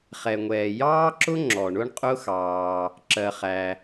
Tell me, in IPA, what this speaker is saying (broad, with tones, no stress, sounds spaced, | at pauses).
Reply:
χ ɛ˩ ŋʷ ɛː˩ j ɑː˥ ǁ ʊ˥ ŋ͡ǁ ɔ˩ ɳ ʊ˥ ɳ qʼ ʊ˥ x ɑː˩ | ǁ ɜ˩ χ æ˩